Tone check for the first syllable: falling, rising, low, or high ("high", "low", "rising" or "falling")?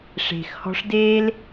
low